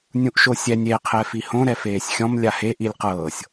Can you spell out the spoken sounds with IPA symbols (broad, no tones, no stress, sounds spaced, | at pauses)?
nʲ ũ ʔ ʃ o sʲ ɛ nʲ e qʰ ɛ f i h õ ɾ ɛ f eː sʲ xʲ ɔ̃ m lʲ a h e ʔ i lʲ q ɤː sʲ